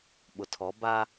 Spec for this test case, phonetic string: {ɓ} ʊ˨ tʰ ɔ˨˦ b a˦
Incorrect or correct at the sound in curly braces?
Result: correct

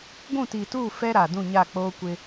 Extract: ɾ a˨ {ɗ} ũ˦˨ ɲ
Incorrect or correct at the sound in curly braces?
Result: incorrect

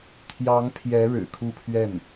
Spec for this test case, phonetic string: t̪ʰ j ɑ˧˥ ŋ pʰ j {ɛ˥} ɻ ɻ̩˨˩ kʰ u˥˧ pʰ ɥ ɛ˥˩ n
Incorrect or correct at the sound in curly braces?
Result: incorrect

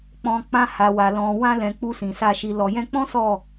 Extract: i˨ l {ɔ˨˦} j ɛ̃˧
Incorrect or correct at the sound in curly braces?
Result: incorrect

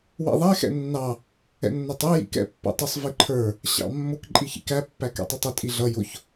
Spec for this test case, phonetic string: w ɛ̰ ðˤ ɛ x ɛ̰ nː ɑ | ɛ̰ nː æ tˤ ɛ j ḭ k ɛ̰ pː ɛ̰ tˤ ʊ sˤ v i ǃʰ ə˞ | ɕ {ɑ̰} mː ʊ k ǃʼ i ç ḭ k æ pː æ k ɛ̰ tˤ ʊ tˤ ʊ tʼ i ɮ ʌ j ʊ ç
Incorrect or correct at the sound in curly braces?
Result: correct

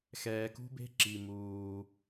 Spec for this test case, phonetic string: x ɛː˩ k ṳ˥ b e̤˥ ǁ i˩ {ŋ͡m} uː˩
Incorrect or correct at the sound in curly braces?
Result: incorrect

